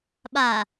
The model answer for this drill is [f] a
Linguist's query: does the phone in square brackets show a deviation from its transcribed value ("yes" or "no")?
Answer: yes